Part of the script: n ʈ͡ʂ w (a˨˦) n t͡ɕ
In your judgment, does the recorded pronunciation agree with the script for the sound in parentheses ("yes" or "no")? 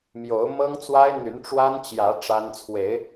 no